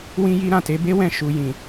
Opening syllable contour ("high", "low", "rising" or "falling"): high